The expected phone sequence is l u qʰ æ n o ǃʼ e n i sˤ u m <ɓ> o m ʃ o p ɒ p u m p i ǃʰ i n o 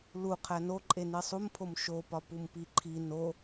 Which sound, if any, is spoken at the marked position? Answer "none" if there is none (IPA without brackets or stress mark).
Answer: pʰ